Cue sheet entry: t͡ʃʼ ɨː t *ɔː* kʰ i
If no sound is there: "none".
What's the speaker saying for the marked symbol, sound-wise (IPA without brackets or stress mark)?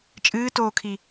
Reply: oː